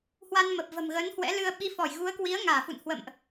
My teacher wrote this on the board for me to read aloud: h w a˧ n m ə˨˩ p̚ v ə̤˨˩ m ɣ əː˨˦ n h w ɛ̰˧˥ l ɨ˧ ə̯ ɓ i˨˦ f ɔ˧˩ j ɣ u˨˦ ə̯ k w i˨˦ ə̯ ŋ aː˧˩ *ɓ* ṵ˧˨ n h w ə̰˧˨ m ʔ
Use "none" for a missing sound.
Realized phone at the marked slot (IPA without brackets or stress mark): f